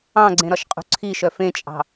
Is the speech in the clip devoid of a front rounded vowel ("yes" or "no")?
no